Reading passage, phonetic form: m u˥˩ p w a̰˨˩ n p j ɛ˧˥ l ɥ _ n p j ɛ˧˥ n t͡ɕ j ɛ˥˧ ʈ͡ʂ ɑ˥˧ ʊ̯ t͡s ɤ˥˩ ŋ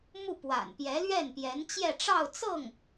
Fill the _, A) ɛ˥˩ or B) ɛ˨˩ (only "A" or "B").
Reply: A